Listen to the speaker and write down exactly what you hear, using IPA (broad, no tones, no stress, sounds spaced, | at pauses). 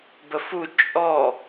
b ə f u t͡ʃʼ ɔ